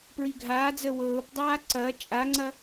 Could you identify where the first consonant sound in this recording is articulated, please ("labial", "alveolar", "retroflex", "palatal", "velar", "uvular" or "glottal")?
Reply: labial